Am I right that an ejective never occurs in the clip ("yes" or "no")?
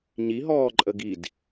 no